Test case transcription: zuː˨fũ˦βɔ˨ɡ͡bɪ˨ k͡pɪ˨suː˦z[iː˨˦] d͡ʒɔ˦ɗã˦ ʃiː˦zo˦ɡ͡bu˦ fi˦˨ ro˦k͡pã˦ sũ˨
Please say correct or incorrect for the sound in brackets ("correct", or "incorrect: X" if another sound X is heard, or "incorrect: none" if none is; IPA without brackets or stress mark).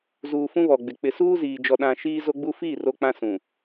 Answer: incorrect: iː˨